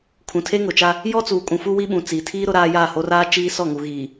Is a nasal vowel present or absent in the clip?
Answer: present